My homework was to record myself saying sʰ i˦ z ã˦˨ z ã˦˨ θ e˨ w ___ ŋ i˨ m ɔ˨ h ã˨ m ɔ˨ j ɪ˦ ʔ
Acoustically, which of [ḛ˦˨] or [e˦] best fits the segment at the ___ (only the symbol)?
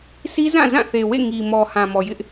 ḛ˦˨